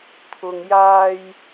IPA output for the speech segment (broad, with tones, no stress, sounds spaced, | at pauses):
t̪ʰ ʊ˨ ŋ j aː˨ j